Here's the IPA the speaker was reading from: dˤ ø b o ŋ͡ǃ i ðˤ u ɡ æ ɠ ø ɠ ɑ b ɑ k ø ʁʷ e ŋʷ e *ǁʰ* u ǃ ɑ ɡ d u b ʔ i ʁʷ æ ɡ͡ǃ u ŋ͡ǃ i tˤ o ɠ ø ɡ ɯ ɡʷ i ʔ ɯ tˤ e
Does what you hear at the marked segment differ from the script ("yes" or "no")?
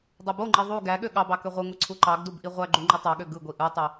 yes